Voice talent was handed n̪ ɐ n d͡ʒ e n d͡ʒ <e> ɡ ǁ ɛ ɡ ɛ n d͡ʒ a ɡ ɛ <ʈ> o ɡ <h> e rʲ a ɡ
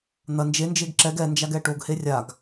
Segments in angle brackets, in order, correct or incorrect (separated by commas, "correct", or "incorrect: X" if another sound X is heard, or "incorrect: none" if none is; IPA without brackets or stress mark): correct, correct, correct